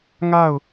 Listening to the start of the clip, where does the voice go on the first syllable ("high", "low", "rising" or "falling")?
falling